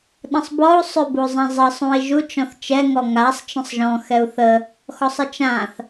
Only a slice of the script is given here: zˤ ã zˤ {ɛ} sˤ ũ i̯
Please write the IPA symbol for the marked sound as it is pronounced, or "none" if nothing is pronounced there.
ɜ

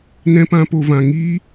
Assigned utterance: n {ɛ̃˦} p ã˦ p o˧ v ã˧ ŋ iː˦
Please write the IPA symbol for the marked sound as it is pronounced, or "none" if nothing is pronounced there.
ɛ̃˦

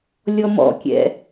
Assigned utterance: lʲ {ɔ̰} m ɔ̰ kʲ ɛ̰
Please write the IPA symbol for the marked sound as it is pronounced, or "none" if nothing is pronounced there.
ɔ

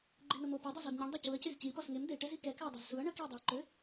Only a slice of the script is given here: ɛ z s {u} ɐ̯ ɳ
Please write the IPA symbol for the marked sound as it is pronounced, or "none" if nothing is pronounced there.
u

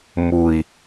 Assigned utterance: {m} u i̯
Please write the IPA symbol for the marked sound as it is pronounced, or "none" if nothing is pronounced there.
m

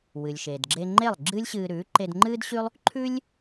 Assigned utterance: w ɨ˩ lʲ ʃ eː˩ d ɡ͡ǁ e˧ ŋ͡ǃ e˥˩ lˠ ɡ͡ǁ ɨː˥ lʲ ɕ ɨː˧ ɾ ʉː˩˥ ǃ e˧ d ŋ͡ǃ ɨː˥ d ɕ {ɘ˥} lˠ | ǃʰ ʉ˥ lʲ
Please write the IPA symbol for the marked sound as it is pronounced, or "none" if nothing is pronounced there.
ʉ˥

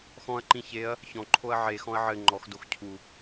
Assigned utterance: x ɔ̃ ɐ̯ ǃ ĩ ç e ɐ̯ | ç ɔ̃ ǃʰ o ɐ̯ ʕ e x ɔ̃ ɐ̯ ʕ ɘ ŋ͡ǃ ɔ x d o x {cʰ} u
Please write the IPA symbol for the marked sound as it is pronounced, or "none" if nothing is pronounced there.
cʰ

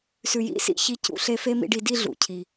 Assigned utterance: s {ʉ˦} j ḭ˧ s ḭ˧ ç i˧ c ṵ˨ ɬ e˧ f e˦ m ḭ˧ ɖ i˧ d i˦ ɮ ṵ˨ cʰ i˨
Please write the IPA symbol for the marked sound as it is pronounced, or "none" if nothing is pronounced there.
ʉ˨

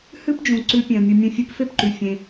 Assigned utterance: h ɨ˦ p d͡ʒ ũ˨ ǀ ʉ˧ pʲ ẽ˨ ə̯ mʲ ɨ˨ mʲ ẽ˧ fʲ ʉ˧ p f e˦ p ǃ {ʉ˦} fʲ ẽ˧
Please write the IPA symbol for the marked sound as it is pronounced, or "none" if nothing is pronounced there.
ʉ˨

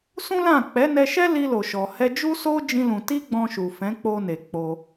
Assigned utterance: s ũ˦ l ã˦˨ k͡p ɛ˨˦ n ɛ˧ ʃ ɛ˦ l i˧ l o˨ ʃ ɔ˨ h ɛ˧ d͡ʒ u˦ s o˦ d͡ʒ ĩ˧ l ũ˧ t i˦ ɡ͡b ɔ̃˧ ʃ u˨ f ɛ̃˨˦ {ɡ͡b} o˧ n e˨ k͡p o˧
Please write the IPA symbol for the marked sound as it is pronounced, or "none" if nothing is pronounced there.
k͡p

